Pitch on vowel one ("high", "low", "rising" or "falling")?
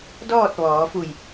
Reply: falling